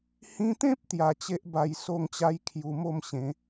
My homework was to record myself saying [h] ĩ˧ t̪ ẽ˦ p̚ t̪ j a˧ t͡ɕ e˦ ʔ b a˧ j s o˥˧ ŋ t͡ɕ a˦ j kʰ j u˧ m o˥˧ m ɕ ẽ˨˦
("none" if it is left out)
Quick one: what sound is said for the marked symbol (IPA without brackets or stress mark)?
h